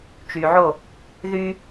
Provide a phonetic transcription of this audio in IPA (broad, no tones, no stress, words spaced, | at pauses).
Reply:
t͡ʃyʕo | ðy